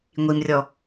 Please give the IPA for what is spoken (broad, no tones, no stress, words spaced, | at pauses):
ŋʷimrʲɔ